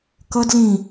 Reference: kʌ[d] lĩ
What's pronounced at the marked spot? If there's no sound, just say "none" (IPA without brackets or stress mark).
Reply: d